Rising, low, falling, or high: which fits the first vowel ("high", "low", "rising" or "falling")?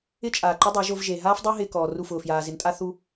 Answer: high